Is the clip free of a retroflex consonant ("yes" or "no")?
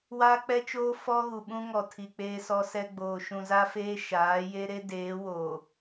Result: yes